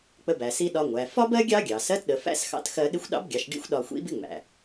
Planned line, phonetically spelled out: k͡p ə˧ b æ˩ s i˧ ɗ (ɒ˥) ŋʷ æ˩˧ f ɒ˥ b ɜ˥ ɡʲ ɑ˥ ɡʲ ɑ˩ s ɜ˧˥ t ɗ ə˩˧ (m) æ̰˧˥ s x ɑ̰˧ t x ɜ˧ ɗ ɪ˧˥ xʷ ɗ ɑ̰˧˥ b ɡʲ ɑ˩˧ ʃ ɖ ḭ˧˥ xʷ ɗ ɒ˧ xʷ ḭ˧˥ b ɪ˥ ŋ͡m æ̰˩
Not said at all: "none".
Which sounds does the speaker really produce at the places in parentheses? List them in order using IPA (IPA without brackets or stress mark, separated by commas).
ɒ˧, f